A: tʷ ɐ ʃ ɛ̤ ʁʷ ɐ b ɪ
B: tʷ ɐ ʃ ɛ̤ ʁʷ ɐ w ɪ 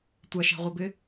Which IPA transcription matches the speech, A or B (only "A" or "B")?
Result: A